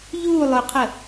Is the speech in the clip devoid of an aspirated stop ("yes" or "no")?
no